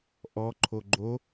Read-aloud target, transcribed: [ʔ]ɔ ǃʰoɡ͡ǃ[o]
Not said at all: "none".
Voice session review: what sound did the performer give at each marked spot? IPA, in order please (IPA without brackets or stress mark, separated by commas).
ʔ, o